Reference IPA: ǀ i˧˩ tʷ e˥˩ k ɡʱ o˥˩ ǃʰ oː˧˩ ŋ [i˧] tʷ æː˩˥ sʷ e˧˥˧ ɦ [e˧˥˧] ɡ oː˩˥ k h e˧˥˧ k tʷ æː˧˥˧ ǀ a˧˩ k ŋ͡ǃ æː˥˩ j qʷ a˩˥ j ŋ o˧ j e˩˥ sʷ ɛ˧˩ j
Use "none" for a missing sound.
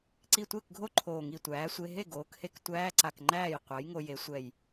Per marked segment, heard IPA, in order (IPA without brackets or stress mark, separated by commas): i˧˩, e˥˩